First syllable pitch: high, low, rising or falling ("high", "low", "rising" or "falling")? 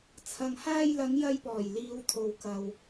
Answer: low